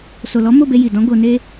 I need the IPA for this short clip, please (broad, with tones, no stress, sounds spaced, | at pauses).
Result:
s o˨ l ɔ˨˦ m o˦˨ b e˧ j i˨ d ɔ̃˨˦ ɡ o˧ n e˦